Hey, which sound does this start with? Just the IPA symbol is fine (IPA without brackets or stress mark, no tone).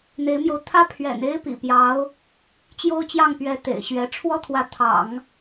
n̪